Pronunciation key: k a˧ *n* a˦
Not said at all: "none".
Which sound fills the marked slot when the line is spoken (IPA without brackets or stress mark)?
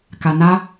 n